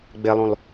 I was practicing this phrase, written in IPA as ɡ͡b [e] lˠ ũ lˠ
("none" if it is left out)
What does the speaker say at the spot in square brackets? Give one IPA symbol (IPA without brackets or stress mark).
e